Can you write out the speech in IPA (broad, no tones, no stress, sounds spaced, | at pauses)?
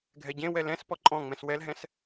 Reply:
ɡʱ ɛ ɟ ẽ w ɛ l ɛ̃ s p ɔ ǃʼ ɔ̃ ŋ͡m ɛ̃ s w ɛ l ɦ ɛ̃ s